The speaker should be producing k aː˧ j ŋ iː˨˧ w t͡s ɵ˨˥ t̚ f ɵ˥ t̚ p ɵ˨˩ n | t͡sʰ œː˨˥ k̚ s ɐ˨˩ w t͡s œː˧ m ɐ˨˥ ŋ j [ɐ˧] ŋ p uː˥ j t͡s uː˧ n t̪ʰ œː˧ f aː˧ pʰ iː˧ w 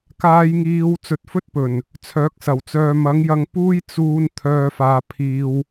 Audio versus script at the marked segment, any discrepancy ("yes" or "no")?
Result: no